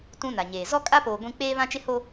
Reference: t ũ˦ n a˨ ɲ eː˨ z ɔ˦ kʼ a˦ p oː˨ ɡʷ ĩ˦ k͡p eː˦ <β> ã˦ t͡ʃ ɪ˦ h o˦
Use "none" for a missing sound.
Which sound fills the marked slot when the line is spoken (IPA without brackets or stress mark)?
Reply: β